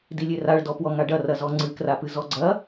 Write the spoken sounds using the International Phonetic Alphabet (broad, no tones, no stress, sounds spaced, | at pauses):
d i lʲ e r a ɭ d ɔ p w ɔ ŋ a ɖ ɐ r ɐ z ɔ ŋ͡ǀ ɨ k r a p ɨ z ɔ ɡ͡ǀ ɐ